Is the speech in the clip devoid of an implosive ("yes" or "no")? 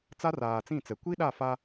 no